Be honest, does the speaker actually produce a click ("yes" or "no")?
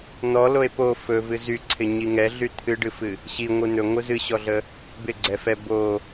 yes